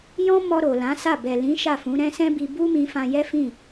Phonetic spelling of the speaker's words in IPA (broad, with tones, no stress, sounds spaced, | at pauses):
j ɔ̃˦ m ɔ˧ ɾ o˨ l ã˨˦ s a˦˨ b ɛ˨ l ĩ˨˦ ʃ a˦˨ f ũ˨˦ ɾ ɛ̃˦ s ɛ̃˦ b i˧ b u˦ m ĩ˧ f ã˧ j ɛ˦ f ĩ˦˨